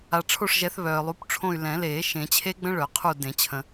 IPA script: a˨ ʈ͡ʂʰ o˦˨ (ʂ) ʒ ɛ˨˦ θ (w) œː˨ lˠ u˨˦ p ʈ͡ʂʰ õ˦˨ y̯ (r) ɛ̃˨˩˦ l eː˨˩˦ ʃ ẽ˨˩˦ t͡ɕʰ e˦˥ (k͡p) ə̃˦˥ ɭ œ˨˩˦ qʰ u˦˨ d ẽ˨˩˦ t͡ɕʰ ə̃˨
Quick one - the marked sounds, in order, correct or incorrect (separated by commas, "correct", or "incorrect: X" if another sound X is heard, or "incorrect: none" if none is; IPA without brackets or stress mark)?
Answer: correct, incorrect: β, incorrect: l, incorrect: ɡ͡b